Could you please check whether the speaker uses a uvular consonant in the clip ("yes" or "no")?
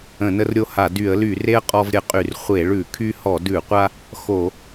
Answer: yes